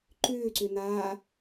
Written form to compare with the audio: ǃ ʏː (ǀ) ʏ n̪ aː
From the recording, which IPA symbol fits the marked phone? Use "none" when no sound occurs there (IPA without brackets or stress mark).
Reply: ǀ